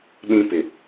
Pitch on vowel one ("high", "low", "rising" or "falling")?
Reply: high